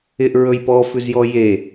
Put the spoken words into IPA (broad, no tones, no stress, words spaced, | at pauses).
ɪʔɹɵj pɔfʉzjɔ je